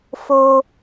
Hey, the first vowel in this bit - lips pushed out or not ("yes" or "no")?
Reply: yes